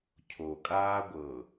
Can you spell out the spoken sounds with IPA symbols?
cʰ o kʼ aː ɡʷ ɤ

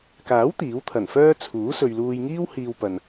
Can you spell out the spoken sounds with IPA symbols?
k aː˨˥ w t̪ iː˨˥ w t̪ʰ ɐ˨˩ n f œː˥ t͡sʰ uː˨˥ s ɵ˨ ɥ l uː˧ j ŋ iː˥ w h iː˧ w p ɐ˨ n

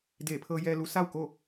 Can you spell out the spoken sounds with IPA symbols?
d eː˧˩ pʰ ɤː˧ j ɛː˧ l u˧˥ s a˥˨ w k o˥˨

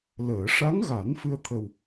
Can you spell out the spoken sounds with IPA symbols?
l əː˨˩˨ ʂ a˧˥ ŋ ɣ a˨˩˦ n f ɨ˧ ə̯ t̪ʰ ə˨˩ w

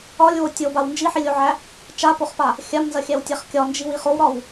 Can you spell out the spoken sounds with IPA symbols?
ɒ lʲ w o tʲ o b a w n d͡ʒ i ħ i lʲ o ʕ æ | t͡ʃ a p o χ p a | xʲ a m n z ɐ xʲ æ w tʲ æ χ kʲ ɒ n d͡ʒ i w i χ o w ɾ ɒ w

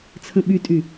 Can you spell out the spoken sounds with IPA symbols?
t͡sʰ ə̃ ɓ y tʼ y

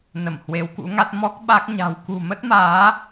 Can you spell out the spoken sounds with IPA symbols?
n ə˧˩ m h w e˨˦ w k ṵ˧˥ ŋ a˦˥ t̚ m ɔ˦˥ k̚ ɓ a˦˥ k̚ ɲ a̤˨˩ w k ṳ˨˩ m ə˦˥ t̚ m aː˨˦

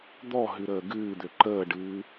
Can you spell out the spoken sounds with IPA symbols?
d̪ ɔ ɦ ɨ ɾ əː ɡ ɨː d̪ ø ǃ əː ɖ ɨː

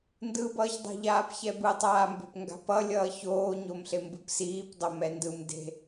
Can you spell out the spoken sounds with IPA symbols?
n d ɯ b ʌː ç dˤ a̤ ʎ aː p ç ɛ b ɯ tˤ aː m b e̤ p ŋ ɡ a̤ p ʌ lʲ ʌː ç oː ɲ o m ɬ e m b ɯ p s iː p dˤ o m ɛ n d ɯ m d e̤

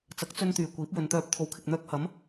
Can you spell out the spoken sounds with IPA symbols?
t͡s ɐ˨˥ k̚ t͡s ɵ˧ n t̪ yː˨˩ kʷ iː˨˥ p̚ w ɵ˨˧ n t̪ œː˧ p̚ t̪ʰ o˨˥ w kʰ ɪ˨ k̚ n̪ œː˧ k̚ h ɐ˨˥ m

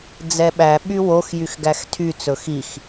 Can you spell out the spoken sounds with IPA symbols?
d͡z ɛ ɓ æ ɓ y w o x j y x ɡ æ x tʰ y t͡s ɵ x i x

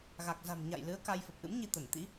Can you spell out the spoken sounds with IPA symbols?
ɣ a˨˩ k̚ z a̤˨˩ m ɲ a̰˧˨ j l ɨ˨˦ ə̯ k a˧ j f ə˨˩ p̚ ʔ ɨ̰˧˥ m ɲ i˧ t̪ ə˧˩ n t̪ ḭ˧˥

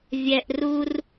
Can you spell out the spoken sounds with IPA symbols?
vʲ ɛ˨ ʔ r u˧ r

